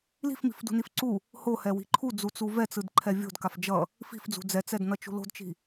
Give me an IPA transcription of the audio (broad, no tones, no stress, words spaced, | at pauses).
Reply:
li̤fmi̤fdṳnif ǀu | hohɛwi̤ ǃʰud͡zut͡su vɛt͡sɯdǃʰɛ vʲo̤dkaf d͡ʒʌ | fi̤fd͡zṳ d͡zɛt͡sɛdnʌt͡ʃṳ lo̤dt͡ʃi̤